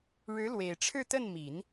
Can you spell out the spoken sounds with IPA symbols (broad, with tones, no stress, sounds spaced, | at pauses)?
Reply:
ɻ ɻ̩˧˥ l w e˨˩ ɪ̯ ʈ͡ʂʰ ɻ̩˥˧ t̪ ə˥˩ n m i˨˩˦ n